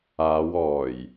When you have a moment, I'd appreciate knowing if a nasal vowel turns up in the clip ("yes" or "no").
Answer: no